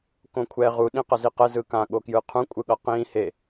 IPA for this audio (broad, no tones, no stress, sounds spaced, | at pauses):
k õ kʷʰ ɛ ʁ u ɗ ĩ q ʌ z i q ɛ z ɯ k ã ɠ o k j ɯ qʰ ũ kʷʼ ɯ ɠ ʌ q ĩ h e